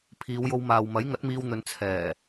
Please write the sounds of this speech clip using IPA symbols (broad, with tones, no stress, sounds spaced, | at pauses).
pʰ iː˨˧ w j o˧ w m aː˨ w m ɐ˨˥ j ŋ ɐ˨˥ t̚ m iː˧ w n̪ ɵ˨˧ n t͡sʰ ɛː˨˩